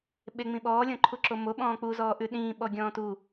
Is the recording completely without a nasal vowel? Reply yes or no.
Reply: no